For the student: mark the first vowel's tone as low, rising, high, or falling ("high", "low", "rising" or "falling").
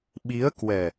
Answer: rising